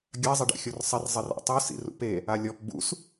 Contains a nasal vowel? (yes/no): no